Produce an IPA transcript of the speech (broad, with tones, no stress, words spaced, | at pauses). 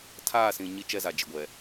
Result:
tʰaː˦˨sĩ˨ ɲi˦t͡ʃɛ˦za˨ d͡ʒɪ˨ɡʷɛ˨